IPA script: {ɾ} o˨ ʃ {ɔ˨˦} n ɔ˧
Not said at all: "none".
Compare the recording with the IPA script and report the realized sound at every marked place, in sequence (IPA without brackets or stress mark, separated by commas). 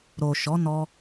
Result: ɾ, ɔ˨˦